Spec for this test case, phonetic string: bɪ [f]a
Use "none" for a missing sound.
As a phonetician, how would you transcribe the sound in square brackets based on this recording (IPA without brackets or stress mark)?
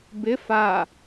f